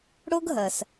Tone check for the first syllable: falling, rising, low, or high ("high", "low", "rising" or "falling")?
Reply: high